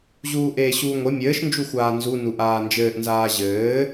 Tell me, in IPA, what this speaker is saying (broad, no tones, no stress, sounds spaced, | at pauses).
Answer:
ʑ uː ʔ eː ɕ uː ŋʷ e mʲ ɘː ʃ n d͡ʒ u xʷ aː n z u n u ʔ aː n d͡ʒ ɘː ʔ n z aː ʑ ɘː